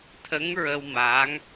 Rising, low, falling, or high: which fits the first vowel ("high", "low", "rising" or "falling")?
rising